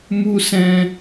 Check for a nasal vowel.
present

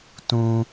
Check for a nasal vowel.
present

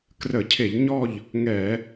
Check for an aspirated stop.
present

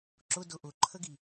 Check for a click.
present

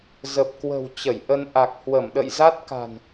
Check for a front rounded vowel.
absent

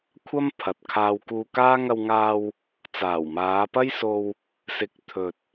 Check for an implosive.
absent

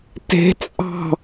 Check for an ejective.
present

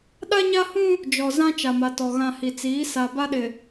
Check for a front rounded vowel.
absent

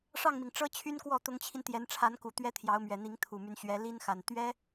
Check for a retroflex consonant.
present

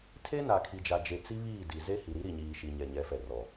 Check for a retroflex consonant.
absent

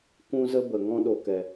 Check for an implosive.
present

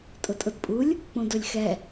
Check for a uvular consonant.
absent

